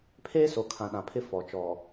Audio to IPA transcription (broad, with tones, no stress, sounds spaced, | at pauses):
pʰ eː˦ s o˨ kʰ ã˨ ɗ ã˨ pʰ ɪ˦ f ɔ˨ t͡ʃ ɔ˨